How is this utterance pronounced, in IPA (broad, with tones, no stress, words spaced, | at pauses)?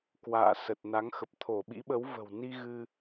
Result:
kwa̰ː˧˨ sə˨˩t̚na˨˦ŋxə˨˩p̚ t̪ʰo˧˩ ɓḭ˧˥ɓə˨˦w və̤˨˩w ni˧ ɣɨ˧